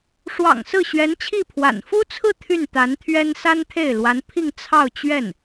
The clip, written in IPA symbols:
ʂ w ɑ̰˨˩ ŋ s ɹ̩˥˩ ɕ ɥ ɛ˧˥ n t͡ɕʰ i˥˩ pʰ w a̰˨˩ n f u˥ t͡sʰ ɹ̩˥˧ t̪ʰ y˥˩ n t̪ a˧˥ n t̪ʰ ɥ ɛ˥ n s a˥ n t̪ʰ e˥˩ ɪ̯ l w a˧˥ n pʰ i˥˧ ŋ t͡sʰ ɑ˥˧ ʊ̯ t͡ɕ ɥ ɛ˥˩ n

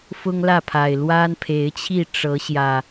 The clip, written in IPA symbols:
f ʊ˦ ŋ l ä˥˨ pʰ a˨˩ ɪ̯ l w a˦ n pʰ e˨˦ ɪ̯ t͡ɕʰ i˥˨ ʈ͡ʂ ɤ˨˦ ɕ j ä˨˩

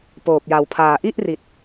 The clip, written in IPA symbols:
p oː˨˩ p̚ j a˨˩ w pʰ aː˨˩ ʔ i˥˩ ʔ r i˨˩ t̚

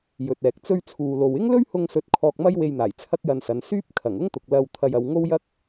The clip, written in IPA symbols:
j ɵ˨ t̚ ɛː˨ k̚ t͡s ɵ˧ ɥ t͡sʰ uː˨ l o˨ w ɪ˥ ŋ l ɵ˥ ɥ h ʊ˧ ŋ s ɵ˨˥ t̚ kʰ ɔː˧ k̚ m ɐ˥ j w e˧ j n̪ aː˨˩ j t͡sʰ ɐ˥ k̚ j ɐ˧ n s ɐ˨˧ n s yː˥ p̚ kʰ ɐ˨˩ ŋ ʊ˥ ŋ t̪ ʊ˨ k̚ l ɐ˧ w t̪ʰ ɐ˧ j ɐ˨˧ w ŋ o˥ w j ɐ˥ k̚

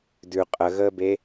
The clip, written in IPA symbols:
d ʉ qʼ ə ɣ əː b e

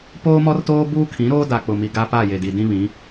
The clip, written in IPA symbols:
p oː˦ m ɔ˦ r t oː˦ b uː˦ kʰ ĩ˨˦ ɾ oː˦ d a˨ k͡p ʊ˨ m i˨ ɡ a˦ p a˦˨ j e˨ d i˨ d ĩ˦ β ĩ˨˦

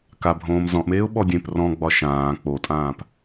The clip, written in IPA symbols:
k a bʱ õː m z ɔ̃ ʔ m eː ʊ̯ ɓ ɔ dʲ ẽ p r ɔ̃ ɡ͡b ɒ ʃ ãː k͡p o tʼ ãː p

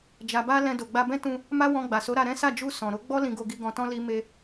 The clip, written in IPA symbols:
d͡ʒ a˨ b a˧ l ɛ̃˧ d o˨ ɡ͡b a˧ b ɛ̃˦ t ũ˧ | m a˦ w ɔ̃˧ ɡ͡b a˨ s o˨˦ ɾ a˧ ɾ ɛ̃˦ s a˦˨ d͡ʒ u˧ s ɔ̃˨ ɾ o˨˦ ɡ͡b ɔ˦ l ĩ˧ ɡ o˧ ɡ i˧ ɡ ɔ̃˧ t ɔ̃˦ l i˦ m e˧

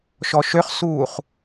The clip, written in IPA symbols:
ʃ ɔ ʃ ø χ s uː χ

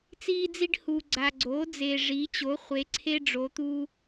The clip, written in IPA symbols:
t͡s iː˦ d͡z i˦ ɖ h u˨ ɡ͡ǀ a˨ ɡ͡ǀ oː˩˥ d͡z e˨ ʐ i˩˥ t͡ɕ o˩˥ χʷ e˩˥ ǀʰ e˦ ɖ͡ʐ o˩˥ t̪ u˦

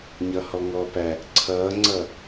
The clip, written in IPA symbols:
ɲ ʌ h ɔ ŋ ɔ p æ | ǀʰ ʌː ŋ͡ǀ ʌ

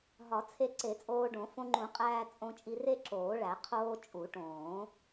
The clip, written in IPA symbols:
ɦ ɒ˨˩˦ t͡sʰ e˧ ǀ e˨˩˦ t͡sʼ oː˧ ɖ õ˨˩˦ f õ˧ ŋ͡ǃ ũ˨˩˦ qʼ æː˧ t͡sʼ õ˧ t͡ʃʼ i˧ r e˧ ǁ oː˨˩˦ ɭ æ˨˩˦ qʰ oː˧ t͡ʃʼ u˨˩˦ ʈ õː˨˩˦

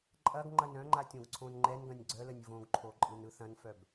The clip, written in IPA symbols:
ǃʼ ɐ ɡ ŋ͡ǃ ɐ n œ̃ ŋ͡ǃ a tʲ õ ɡ ǀʰ õ n ŋ͡ǃ ɛ n ɡ ɐ̃ nʲ ɡ͡ǀ œ l ə nʲ v õ ɡ ǃʰ o ǃʼ ɯ n ɯ θ ɐ̃ n f œ b

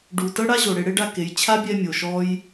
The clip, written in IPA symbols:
ɖ u˨ t ɤ˦ ɽ a˦ ʑ o˨ ɽ e˧ ɽ e˦ ɖ a˦ k e˨˦ j t͡ɕʰ a˦ bʲ ɛ˧ mʲ o˨ ʃ ɔ˦ j

